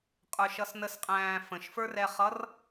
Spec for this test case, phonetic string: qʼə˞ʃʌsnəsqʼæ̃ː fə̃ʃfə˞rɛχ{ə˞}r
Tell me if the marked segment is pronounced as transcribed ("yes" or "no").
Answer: no